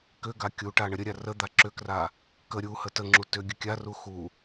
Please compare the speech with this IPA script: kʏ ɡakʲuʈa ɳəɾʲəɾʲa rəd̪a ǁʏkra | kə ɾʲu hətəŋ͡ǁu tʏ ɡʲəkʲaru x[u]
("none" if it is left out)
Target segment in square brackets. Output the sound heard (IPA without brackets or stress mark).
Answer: u